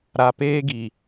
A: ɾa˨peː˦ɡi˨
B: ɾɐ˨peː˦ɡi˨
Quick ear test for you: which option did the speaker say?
A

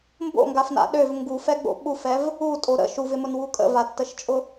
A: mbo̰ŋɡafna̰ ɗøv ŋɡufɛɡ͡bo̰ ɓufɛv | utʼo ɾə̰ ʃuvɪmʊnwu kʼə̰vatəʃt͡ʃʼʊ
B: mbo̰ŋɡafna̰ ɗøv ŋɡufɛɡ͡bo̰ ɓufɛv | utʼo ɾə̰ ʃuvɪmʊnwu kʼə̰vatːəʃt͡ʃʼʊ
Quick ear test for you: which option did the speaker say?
B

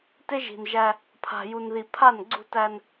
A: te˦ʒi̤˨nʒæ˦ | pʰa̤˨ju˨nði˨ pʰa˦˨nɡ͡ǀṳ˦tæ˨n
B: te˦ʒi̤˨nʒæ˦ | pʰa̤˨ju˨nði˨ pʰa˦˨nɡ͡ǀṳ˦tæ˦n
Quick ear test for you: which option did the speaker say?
B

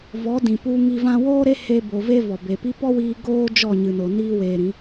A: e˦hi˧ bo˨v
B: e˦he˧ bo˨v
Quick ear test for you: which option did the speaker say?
B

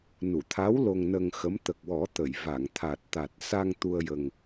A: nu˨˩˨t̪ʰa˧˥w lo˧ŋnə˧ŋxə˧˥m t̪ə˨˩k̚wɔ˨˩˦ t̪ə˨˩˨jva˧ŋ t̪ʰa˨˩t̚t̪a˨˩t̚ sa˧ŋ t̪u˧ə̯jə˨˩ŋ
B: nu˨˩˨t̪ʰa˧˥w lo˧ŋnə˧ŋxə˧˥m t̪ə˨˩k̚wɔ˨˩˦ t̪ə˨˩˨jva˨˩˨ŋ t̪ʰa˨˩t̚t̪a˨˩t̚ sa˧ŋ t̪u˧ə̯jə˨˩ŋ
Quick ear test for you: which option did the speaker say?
B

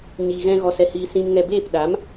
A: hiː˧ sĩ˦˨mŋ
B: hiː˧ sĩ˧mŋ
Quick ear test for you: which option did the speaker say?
B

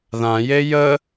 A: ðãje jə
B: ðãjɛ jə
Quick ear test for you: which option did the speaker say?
A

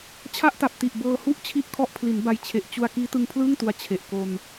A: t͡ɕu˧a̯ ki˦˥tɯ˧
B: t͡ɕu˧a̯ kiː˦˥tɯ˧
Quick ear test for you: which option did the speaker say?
B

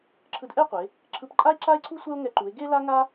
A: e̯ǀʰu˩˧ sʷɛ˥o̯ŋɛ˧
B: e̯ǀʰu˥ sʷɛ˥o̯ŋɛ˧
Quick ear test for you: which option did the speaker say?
B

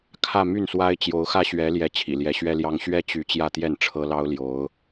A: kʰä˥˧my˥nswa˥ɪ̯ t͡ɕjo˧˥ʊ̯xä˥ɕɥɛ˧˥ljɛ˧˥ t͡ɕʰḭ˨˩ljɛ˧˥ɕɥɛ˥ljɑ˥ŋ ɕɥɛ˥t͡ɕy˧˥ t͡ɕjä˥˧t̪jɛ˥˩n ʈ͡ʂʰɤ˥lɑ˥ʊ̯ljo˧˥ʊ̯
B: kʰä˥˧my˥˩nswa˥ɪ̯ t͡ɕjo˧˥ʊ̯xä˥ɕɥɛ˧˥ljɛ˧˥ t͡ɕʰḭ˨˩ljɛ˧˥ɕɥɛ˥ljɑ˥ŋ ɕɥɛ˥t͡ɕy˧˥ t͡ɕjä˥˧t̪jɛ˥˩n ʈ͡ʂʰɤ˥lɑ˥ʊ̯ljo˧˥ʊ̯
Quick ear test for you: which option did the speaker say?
B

